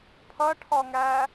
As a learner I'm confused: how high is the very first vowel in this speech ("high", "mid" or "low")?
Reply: mid